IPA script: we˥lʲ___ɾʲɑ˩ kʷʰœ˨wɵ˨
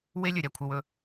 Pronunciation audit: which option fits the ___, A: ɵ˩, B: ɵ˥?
A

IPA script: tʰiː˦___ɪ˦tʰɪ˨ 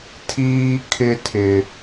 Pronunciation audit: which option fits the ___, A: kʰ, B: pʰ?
A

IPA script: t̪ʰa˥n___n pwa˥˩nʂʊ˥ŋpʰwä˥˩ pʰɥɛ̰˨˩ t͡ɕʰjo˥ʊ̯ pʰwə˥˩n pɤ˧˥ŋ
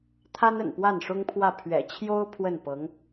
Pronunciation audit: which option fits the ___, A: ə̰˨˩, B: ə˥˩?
A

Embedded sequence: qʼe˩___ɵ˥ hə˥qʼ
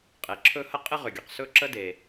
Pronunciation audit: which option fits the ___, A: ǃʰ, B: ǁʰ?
B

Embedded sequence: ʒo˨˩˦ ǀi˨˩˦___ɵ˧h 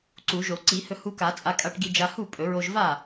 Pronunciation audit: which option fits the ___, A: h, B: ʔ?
A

